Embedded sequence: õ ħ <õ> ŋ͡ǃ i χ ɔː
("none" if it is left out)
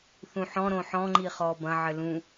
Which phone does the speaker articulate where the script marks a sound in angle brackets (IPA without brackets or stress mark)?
ɔ̃